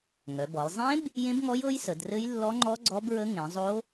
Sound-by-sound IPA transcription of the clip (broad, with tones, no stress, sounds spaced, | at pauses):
ŋ œ˩˧ b ɔ˩˧ j zˤ ẽ˦˥ b | j ẽ˦˥ b ŋ ɔ˦˥ j ɤ˦˥ j s ə˩˧ d r ɘ˦˥ j lː ɔ˦˥ ŋ͡ǃ ɔ˦˥ ɡ͡ǀ ɔ˦˥ b ɹ ə˦˥ ŋ ẽ˩˧ zˤ o˦˥